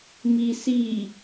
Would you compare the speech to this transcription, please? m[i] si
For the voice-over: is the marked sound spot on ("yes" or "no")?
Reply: yes